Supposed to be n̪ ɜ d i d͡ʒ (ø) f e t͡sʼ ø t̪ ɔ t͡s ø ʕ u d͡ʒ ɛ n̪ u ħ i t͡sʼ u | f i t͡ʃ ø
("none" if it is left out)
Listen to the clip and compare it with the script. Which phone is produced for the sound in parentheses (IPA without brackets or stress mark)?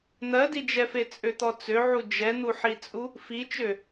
ɛ